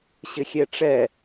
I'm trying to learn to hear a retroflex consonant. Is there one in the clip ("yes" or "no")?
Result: yes